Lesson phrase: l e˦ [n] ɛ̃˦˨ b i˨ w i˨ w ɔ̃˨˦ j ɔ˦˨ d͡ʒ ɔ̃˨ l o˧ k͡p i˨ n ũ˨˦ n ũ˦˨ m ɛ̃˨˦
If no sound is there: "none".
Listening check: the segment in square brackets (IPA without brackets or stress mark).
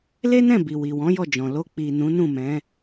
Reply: n